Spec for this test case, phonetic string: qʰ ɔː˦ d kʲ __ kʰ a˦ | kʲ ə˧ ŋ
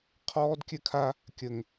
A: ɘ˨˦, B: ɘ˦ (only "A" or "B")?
B